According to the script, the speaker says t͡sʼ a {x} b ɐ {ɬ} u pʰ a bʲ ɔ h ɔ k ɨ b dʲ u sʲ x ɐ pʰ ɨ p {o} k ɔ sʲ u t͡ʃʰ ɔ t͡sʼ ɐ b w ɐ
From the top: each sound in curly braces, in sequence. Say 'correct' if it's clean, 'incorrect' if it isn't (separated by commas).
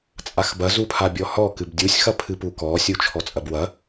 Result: correct, incorrect, incorrect